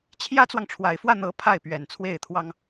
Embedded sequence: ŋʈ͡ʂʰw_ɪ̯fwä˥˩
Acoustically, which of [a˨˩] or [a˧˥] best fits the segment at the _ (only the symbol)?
a˨˩